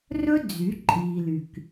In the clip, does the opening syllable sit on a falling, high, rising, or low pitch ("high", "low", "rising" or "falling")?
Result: high